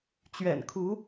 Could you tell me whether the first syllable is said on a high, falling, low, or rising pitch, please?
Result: low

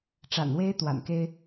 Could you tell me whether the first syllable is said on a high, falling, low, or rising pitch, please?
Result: low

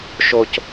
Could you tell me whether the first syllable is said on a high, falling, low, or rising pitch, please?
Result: high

